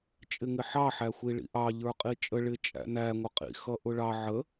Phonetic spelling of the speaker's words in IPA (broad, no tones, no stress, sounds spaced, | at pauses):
t͡ʃʼ ɪ ŋ ɪ ħ ɑ ħ æ xʷ i ɭ ḭ ʔ ɑ ʎ ə˞ qʼ i t͡ʃʼ ə ɭ ɪ t͡ʃʼ æ̰ n æ ŋʷ ə qʼ ḭ x ʌ ʔ ʊ ɭ ɑ ʕ ə